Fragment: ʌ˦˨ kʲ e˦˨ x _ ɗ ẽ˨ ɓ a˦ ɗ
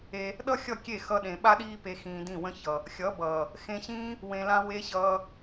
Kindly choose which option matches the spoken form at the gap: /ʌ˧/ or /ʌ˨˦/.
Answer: ʌ˧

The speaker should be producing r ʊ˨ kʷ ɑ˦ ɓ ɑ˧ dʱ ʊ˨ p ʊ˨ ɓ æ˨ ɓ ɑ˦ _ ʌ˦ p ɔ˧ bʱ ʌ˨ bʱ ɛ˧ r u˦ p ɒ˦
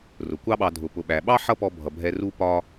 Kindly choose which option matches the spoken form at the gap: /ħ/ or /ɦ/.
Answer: ħ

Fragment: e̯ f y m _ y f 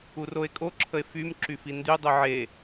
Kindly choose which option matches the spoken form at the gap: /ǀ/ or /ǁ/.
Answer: ǁ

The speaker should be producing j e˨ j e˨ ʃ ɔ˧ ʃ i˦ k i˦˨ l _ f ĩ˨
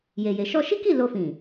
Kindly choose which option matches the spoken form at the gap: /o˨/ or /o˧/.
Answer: o˧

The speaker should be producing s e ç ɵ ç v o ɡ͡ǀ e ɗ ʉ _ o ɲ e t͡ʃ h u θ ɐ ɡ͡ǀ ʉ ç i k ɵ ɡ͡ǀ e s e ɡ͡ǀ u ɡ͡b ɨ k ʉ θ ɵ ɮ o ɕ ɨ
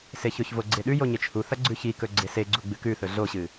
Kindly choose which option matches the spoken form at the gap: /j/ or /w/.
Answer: j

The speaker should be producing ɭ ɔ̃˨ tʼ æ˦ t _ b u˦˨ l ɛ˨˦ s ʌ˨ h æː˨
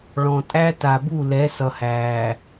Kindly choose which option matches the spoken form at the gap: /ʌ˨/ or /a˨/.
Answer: a˨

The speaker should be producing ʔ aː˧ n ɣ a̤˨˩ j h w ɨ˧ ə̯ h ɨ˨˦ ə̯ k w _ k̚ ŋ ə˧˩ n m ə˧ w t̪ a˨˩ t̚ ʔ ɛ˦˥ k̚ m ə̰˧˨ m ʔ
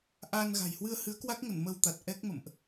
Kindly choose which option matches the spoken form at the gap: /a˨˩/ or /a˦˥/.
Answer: a˦˥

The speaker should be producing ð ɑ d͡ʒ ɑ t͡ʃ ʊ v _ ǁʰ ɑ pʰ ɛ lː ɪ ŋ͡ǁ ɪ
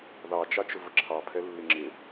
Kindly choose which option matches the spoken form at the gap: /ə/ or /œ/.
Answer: ə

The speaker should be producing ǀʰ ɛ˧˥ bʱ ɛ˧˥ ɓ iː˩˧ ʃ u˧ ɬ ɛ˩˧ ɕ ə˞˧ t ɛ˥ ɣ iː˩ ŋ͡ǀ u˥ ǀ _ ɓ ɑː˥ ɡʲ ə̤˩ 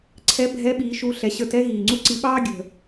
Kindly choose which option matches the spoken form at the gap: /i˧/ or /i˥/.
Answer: i˧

